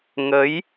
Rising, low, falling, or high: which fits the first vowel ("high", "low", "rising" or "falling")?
rising